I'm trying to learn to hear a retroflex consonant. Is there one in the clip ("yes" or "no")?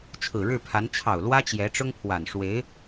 yes